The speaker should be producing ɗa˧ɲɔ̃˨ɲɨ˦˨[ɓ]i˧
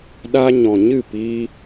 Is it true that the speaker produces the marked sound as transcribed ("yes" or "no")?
no